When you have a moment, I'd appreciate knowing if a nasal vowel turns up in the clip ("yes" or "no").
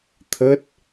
no